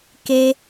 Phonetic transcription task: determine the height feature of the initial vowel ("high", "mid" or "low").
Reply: mid